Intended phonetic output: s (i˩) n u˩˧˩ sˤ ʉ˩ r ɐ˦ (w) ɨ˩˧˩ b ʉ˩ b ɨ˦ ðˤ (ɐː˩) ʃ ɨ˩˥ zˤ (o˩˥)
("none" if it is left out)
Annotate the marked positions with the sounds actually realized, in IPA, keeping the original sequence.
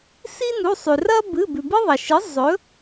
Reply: i˦, b, ɐ˩, ɵ˩˥

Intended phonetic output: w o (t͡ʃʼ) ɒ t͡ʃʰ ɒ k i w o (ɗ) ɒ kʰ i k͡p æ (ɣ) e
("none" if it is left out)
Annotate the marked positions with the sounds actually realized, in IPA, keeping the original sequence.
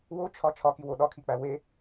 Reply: t͡ʃʰ, ɗ, w

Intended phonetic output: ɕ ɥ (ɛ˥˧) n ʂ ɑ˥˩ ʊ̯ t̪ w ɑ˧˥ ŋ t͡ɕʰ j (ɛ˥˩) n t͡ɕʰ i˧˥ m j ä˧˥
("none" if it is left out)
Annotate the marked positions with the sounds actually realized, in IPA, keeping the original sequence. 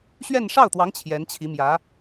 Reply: ɛ˥˧, ɛ˧˥

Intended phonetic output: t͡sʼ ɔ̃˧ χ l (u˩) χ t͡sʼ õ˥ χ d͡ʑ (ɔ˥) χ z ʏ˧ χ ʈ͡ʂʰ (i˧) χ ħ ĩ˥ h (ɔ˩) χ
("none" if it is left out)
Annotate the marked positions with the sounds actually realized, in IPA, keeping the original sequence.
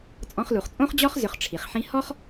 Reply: u˩, ɔ˥, i˩, ɔ˥

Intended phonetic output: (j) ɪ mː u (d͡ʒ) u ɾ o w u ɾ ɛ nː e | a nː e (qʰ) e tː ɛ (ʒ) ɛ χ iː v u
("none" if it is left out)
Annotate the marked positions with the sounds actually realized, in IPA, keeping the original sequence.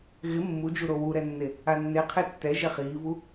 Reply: ɣ, d͡ʒ, qʰ, ʒ

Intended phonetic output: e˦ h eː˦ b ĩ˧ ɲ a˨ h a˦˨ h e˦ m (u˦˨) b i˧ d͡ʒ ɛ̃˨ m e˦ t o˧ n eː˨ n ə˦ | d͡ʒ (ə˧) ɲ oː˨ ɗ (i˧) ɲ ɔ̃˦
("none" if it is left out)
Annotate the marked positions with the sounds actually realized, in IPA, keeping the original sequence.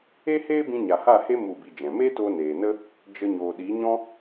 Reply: u˦˨, ə˧, i˨˦

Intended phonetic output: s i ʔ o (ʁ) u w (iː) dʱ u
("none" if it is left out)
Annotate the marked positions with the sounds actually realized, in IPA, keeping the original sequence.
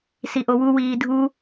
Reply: w, iː

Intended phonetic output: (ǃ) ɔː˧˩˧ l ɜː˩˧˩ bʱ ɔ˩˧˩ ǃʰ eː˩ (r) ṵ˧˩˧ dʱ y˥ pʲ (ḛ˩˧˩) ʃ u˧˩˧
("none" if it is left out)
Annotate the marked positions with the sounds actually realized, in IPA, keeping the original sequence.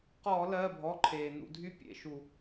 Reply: q, n, ḛ˩˧˩

